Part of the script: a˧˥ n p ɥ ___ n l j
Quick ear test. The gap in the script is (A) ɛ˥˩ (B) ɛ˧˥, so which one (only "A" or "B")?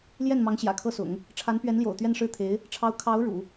B